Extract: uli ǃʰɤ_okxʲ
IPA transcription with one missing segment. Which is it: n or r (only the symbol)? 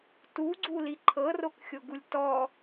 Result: r